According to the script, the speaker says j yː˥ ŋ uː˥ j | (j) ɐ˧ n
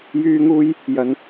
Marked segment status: correct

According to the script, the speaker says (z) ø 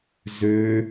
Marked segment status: correct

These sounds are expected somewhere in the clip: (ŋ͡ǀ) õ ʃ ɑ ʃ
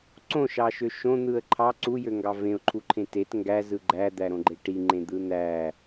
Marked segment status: incorrect: ǀ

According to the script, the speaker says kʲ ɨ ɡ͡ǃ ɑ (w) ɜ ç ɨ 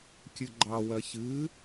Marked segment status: correct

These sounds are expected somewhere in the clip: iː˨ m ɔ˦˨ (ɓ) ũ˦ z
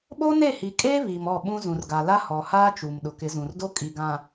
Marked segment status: correct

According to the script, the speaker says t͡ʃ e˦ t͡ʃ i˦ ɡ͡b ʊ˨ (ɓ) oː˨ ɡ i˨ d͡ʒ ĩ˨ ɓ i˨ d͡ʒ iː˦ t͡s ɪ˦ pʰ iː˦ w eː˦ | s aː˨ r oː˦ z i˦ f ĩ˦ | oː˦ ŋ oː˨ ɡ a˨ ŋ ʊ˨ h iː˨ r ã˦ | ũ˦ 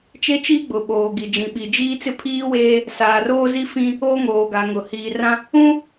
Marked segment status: correct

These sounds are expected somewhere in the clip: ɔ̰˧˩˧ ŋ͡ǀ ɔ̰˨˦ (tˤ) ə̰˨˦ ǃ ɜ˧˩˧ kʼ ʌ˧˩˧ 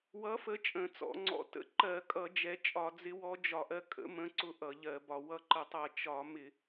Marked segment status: incorrect: t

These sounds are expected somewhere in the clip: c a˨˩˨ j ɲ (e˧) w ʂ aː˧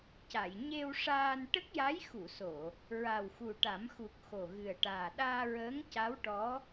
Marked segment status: correct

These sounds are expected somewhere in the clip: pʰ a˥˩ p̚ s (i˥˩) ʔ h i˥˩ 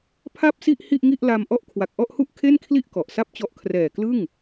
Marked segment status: correct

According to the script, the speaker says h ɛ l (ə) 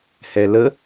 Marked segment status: correct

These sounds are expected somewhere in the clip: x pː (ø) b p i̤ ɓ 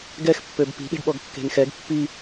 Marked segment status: correct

